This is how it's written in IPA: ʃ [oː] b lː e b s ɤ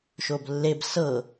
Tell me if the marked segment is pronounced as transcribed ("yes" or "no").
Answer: no